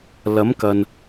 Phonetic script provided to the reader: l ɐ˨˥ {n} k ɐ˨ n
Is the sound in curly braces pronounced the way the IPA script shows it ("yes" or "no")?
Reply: no